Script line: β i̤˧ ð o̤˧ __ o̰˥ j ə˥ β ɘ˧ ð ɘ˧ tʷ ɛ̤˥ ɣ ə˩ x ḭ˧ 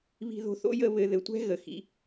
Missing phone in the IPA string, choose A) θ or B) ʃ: A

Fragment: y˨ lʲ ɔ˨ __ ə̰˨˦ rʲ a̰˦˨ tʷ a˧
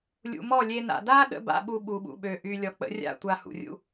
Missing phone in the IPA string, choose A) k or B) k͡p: B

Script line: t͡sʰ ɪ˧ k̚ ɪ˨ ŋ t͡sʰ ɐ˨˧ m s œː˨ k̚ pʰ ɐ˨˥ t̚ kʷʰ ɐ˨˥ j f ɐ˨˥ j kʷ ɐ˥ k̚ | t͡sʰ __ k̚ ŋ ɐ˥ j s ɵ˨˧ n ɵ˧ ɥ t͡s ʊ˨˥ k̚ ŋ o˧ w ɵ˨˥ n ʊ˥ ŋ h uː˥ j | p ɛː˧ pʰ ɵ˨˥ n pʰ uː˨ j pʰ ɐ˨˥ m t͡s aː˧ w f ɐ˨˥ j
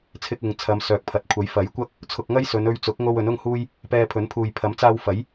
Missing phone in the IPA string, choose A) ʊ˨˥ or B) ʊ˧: B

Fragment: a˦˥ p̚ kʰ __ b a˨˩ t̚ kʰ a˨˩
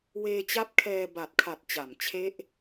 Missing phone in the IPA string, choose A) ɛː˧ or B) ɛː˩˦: A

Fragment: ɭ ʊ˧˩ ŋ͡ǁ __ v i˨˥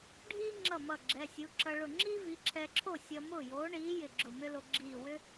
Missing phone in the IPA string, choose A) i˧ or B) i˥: B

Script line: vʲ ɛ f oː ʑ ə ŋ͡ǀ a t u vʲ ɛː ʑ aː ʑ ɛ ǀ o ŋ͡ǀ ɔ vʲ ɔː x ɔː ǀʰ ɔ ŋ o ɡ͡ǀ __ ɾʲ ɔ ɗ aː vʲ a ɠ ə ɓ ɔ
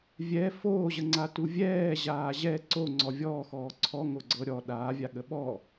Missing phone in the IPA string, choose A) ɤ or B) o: A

